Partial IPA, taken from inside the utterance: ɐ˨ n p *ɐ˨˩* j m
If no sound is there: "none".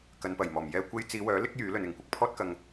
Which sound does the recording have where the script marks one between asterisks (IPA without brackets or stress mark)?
ɐ˨˩